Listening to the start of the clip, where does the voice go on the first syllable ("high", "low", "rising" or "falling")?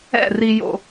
falling